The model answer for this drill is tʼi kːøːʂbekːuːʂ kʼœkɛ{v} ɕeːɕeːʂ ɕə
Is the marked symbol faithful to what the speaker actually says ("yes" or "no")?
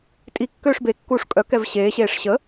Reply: yes